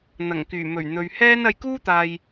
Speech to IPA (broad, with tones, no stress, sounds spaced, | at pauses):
n̪ ɐ˨˩ ŋ k yː˨˩ m ɵ˨˩ ɥ n̪ ɵ˨ ɥ h ɛː˥ n ɐ˧ j k uː˥ t̪ aː˨ j